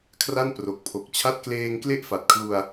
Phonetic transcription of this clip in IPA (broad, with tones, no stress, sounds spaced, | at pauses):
kʰ r a˥˩ n p r o˨˩ k̚ pʰ o˨˩ k̚ t͡ɕʰ a˥˩ t̚ k l eː˧ ŋ k l e˥˩ ʔ f a˨˩ t̚ kʰ l u˧ a̯